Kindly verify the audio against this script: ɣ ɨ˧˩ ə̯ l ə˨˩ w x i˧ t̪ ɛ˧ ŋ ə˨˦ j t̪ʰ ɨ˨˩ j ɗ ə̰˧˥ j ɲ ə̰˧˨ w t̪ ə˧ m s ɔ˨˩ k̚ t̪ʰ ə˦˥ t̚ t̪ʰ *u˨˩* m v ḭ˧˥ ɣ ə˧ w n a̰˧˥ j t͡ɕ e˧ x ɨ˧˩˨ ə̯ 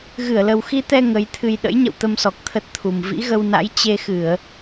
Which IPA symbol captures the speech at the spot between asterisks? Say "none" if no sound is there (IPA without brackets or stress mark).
u˨˩